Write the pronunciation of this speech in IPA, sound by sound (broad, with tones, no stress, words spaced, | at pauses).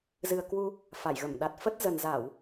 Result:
zɨ˨˩ə̯ kwu˧ | fa˧˩jɣə˧˩m ɗa˨˩t̚fə˦˥t̚ zə˨˩nza˧˩˨w